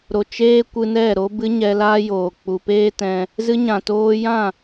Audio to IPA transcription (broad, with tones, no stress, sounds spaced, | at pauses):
ɾ o˨ t͡ʃ eː˦ kʷ ɨ˧ n ɛ˦˨ ɾ o˧ b ɨ˧ ɲ ɛ˧ l aː˦ j oː˨ k͡p u˨ p eː˦ t ɛ̃˧ | z ɨ˧ ɲ ã˨ t oː˧ j ã˦˨